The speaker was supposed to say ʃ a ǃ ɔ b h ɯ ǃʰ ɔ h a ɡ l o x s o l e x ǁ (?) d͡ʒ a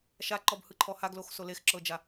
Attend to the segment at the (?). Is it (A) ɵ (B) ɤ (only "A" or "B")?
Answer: B